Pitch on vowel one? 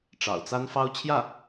low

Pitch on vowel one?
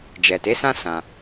low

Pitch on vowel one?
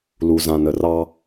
low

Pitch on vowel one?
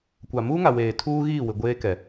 low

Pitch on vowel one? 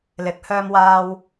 rising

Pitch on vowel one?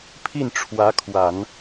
falling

